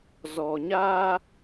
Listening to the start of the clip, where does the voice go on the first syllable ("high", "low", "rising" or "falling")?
low